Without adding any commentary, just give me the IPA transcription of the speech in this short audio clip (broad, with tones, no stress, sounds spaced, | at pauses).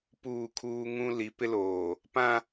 p uː˦˨ kʰ uː˦ ŋ ũ˦ l i˨˦ p ɪ˦ l oː˨ | p ã˦